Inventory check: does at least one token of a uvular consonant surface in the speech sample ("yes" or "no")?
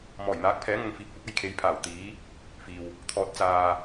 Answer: no